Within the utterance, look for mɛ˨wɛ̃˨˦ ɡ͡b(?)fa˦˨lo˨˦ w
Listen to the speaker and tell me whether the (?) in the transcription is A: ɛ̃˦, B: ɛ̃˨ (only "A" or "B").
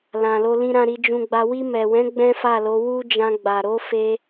A